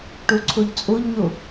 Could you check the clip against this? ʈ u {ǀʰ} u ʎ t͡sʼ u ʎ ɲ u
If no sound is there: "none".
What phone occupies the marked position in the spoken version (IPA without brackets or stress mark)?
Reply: ǀʰ